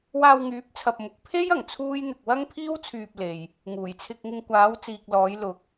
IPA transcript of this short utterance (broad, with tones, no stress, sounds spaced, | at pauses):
w aː˧ w ŋ yː˨˥ p̚ t͡sʰ ɐ˨ p̚ m ʊ˨ k̚ pʰ e˥ j ɐ˨˩ ŋ t͡sʰ uː˥ j n̪ ɪ˧ k̚ w ɐ˥ ŋ pʰ iː˥ w t͡sʰ yː˧ p̚ l e˨ j | ŋ uː˨˩ j t͡sʰ ɪ˧ k̚ ŋ ɪ˧ ŋ kʷ aː˨˧ w t͡s iː˨ k̚ l ɔː˨˧ j l ʊ˨ k̚